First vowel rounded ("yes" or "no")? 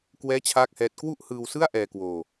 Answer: no